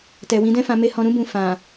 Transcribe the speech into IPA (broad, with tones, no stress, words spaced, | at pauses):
tɛ˨wĩ˨˦dɛ̃˦fã˧ me˧hɔ̃˧ɾũ˦ bũ˧fã˨